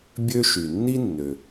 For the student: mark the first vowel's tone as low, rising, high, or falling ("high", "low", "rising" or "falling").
high